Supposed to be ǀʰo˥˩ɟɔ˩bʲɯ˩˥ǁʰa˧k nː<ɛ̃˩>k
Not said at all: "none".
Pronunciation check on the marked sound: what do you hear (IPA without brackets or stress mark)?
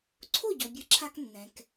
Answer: ɛ̃˩